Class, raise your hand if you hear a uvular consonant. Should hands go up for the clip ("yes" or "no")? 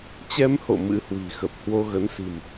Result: no